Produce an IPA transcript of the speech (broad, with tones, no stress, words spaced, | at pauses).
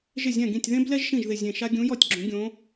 ʒɪ˥˩ zʲɛ̃˥˩ɡĩ˥˩tʲ ðẽ˥blɛ˥ʒ ʃĩ˥˩ʒðɪ˧˩zʲẽ˧˩ʃa˥ ɡʲũ˧˥jɔ˥˩tʲ ɡ͡ǁũ˩˥ɡʲõ˧˥